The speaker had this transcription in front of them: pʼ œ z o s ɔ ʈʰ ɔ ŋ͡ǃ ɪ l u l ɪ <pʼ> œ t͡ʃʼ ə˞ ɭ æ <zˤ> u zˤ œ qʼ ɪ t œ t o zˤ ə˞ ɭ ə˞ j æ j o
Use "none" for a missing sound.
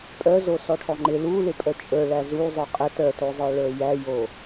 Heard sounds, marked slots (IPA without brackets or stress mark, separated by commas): pʼ, z